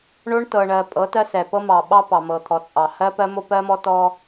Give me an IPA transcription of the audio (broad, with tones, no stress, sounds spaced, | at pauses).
ɳ o˦ ɳ t ɤ˨ ɳ ɜ˨ pʼ ɤ˨˦ t ɜ˦ s ɛ˨ p ɤ˦ m ɑ˨ ɓ ɑ˦ p ɑ˨ m ɤ˨ t̪ʰ ɔ˨ t͡sʼ ɑ˨ h ɜ˦ p ɜ˦ m o˦ p ɜ˦ m ɔ˦ t ɔ˦